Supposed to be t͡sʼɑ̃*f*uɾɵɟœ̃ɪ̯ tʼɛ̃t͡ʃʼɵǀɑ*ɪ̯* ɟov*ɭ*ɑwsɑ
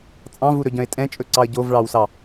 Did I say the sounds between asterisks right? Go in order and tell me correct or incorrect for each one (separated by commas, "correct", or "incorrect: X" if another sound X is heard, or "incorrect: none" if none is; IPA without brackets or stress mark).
incorrect: v, incorrect: ə̯, correct